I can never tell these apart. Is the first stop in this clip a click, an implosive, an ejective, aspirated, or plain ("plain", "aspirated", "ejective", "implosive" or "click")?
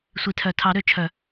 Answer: aspirated